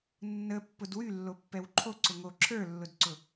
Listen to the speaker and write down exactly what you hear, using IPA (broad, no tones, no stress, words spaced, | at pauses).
nːə pːʊdwy lːopːɛwǃʰo ǀʊŋo ǁʰə˞lːʊdǀʊ